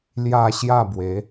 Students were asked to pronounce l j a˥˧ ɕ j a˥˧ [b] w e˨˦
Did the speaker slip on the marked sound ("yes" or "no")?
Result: no